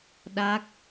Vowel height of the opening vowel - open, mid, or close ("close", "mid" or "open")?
open